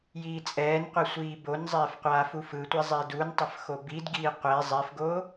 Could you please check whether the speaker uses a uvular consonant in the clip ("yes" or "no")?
yes